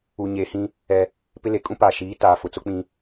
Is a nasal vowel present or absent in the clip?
present